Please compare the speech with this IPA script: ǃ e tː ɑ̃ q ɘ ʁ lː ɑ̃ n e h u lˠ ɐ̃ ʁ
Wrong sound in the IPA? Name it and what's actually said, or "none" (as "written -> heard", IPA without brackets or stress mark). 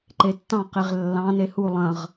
ɘ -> e